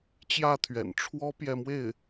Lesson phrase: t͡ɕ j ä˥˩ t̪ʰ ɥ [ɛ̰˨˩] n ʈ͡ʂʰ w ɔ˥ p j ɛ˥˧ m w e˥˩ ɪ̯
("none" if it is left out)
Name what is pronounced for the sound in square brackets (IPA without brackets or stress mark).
ɛ̰˨˩